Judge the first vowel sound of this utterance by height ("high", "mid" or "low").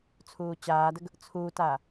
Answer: high